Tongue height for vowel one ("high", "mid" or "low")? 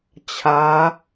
low